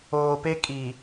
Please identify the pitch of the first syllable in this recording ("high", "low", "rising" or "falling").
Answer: low